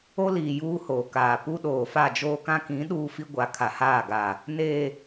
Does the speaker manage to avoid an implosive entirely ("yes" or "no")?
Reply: no